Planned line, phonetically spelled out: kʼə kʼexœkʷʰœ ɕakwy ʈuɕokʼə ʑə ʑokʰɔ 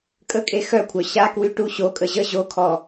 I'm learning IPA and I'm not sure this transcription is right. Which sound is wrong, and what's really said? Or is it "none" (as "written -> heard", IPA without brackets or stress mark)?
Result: none